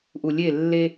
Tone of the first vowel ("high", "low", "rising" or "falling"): low